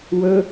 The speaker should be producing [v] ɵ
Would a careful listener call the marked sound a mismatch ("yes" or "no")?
yes